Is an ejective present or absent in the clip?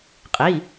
present